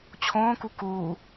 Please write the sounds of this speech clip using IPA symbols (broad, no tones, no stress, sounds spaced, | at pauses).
t͡ɕʰ õː k u k uː